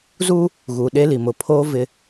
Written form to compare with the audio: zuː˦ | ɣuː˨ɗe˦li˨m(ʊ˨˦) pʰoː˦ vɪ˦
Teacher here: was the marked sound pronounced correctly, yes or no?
yes